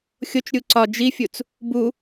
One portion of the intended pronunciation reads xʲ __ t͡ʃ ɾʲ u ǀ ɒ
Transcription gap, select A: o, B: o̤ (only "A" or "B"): A